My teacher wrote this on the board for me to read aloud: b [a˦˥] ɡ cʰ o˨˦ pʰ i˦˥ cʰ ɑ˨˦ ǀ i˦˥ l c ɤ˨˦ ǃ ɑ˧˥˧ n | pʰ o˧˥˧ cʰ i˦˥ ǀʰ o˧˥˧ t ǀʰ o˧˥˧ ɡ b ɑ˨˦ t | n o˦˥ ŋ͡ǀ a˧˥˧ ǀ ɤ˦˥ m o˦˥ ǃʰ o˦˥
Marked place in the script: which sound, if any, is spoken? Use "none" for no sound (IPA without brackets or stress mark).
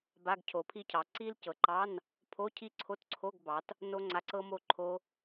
a˧˥˧